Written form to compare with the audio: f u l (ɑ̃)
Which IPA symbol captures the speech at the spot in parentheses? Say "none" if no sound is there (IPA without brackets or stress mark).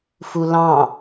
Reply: ɑ̃